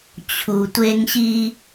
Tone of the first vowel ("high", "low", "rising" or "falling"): low